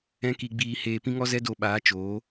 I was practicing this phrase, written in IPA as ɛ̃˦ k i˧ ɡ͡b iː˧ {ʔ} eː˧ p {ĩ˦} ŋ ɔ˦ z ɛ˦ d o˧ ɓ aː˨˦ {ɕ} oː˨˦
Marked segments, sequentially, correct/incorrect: incorrect, correct, incorrect

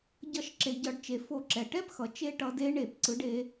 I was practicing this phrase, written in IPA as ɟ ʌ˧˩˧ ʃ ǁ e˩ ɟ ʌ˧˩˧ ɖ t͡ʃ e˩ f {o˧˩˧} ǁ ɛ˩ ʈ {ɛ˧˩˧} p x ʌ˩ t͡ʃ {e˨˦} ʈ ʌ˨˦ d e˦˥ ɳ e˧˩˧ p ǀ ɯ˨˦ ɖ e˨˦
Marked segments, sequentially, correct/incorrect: correct, incorrect, incorrect

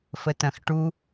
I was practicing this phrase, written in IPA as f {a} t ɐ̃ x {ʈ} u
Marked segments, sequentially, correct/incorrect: incorrect, correct

